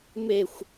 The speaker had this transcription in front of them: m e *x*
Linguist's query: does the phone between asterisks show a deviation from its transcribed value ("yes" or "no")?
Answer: yes